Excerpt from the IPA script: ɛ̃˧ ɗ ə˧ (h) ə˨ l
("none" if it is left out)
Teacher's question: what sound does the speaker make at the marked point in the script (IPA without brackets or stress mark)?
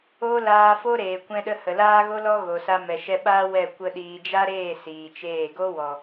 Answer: h